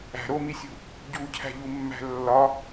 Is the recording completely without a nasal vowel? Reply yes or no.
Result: yes